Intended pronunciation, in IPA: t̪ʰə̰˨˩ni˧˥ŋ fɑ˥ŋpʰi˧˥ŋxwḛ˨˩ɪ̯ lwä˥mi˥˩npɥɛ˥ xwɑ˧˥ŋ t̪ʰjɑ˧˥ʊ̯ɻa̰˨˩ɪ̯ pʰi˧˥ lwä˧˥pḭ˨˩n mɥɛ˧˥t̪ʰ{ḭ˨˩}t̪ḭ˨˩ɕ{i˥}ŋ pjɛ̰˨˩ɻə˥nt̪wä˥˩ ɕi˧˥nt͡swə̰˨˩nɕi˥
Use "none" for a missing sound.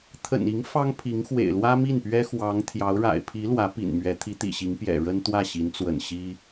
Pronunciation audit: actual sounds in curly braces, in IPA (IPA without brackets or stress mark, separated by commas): i˧˥, i˧˥